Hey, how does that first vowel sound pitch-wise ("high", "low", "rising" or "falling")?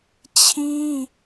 high